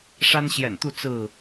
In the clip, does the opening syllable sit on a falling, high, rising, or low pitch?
high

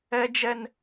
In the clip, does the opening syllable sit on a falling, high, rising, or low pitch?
high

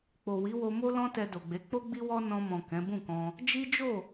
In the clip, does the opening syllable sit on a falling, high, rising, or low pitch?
low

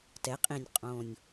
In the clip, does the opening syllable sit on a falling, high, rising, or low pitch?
rising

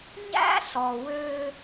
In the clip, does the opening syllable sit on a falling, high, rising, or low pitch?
high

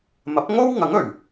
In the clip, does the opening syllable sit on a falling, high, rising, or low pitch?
rising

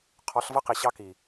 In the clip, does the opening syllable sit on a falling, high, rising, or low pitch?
rising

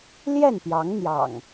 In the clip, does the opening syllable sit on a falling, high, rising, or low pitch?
falling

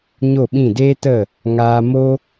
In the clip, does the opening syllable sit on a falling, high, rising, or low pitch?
falling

